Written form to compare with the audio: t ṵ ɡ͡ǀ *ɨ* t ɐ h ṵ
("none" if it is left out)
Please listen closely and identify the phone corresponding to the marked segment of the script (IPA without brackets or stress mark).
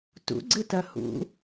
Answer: ɨ